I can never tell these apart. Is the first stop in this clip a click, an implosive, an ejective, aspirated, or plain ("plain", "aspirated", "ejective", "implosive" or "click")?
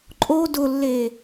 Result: click